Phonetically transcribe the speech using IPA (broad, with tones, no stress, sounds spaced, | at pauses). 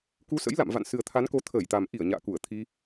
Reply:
k u˨˦ s ə̰˧˥ j l a̰˧˨ m v a̰˧˨ n s ɨ˨˩ ə̯ t̪ʰ a˨˦ n k o˨˦ t̪ʰ əː˧˩ j t̪ a˨˩ m ʔ i˧˩ ə̯ ɲ a̰ː˧˨ k u˧˩ ə̯ t̪ʰ i˧